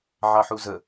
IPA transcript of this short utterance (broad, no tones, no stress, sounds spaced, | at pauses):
ʕ ɑ ħ u z ə